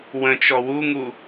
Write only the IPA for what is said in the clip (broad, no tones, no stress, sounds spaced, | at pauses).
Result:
w ə̃ t͡ʃ ɔ w u ŋ u